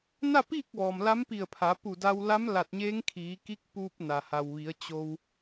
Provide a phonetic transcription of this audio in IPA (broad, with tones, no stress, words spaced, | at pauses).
na˥˨piː˥˨k̚ ʋɔː˩mla˧˥mpi˧˩ə̯pʰa˩˧ pu˧˩da˧wla˧˥m la˧˩t̚ɲeː˧˥ŋkʰiː˩˧ki˧˥k̚ puː˧p̚ na˩ha˩wʋi˩˧ə̯ t͡ɕo˧w